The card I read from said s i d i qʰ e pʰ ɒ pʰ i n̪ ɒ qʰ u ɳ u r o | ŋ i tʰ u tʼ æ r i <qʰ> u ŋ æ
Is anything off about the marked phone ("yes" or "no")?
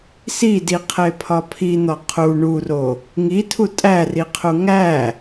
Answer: no